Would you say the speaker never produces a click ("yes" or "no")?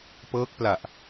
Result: yes